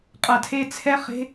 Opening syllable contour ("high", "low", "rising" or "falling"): low